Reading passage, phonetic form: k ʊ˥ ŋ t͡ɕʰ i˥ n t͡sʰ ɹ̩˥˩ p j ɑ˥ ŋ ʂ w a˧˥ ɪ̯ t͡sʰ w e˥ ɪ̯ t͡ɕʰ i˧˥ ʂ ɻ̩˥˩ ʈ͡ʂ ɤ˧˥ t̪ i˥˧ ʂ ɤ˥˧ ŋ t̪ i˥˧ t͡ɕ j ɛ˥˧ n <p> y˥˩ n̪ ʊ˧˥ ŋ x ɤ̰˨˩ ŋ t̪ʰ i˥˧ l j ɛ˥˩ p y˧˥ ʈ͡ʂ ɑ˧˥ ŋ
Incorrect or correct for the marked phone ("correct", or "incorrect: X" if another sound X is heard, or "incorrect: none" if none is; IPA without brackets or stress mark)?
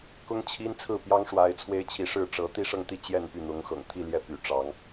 correct